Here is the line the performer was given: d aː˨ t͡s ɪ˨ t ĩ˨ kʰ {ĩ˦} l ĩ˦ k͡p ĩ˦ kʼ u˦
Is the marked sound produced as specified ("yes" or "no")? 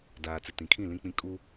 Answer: no